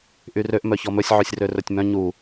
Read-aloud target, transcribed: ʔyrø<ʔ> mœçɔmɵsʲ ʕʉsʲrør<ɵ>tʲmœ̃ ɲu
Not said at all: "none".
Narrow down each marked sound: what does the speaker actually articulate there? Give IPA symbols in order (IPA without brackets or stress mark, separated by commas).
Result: ʔ, ɵ